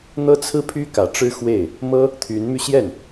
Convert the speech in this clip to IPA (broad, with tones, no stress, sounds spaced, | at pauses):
n̪ ɤ˥ t͡sʰ ɹ̩˥˩ pʰ y˥ k ä˨˩ ʈ͡ʂ ɻ̩˥ x w e˥˩ ɪ̯ | m ɤ˥ | t̪ʰ y˧˥ n m y˧ ɕ j ɛ˥˩ n